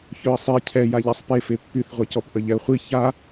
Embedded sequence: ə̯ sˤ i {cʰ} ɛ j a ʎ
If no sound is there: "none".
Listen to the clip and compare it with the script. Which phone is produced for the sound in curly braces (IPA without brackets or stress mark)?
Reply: cʰ